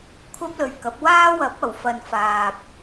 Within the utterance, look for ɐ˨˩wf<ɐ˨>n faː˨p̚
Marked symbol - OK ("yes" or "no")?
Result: yes